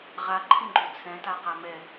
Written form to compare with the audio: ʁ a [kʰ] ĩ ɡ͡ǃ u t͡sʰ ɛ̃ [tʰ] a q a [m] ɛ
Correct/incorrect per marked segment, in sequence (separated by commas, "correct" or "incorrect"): incorrect, incorrect, correct